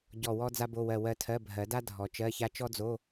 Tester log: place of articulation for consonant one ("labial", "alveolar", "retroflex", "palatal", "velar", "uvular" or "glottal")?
palatal